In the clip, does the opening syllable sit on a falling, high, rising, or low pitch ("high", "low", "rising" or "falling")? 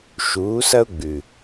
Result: rising